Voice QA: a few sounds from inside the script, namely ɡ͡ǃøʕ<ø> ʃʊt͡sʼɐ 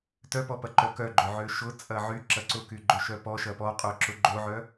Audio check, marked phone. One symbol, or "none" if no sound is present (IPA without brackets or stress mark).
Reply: ø